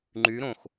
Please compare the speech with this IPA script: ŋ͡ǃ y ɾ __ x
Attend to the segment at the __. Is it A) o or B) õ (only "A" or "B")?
B